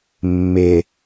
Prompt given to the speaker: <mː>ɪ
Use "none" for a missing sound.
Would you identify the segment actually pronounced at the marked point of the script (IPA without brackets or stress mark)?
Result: mː